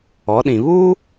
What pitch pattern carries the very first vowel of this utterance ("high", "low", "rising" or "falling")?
rising